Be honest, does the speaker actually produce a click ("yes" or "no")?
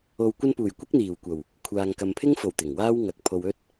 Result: no